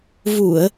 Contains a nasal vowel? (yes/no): no